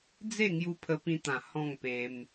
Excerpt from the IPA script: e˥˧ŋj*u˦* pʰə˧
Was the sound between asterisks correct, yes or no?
no